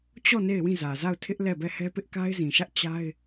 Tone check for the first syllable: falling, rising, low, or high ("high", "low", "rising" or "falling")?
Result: falling